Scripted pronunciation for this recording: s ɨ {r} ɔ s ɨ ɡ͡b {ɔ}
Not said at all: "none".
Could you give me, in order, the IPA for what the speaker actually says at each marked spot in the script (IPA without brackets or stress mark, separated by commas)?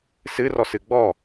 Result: r, ɔ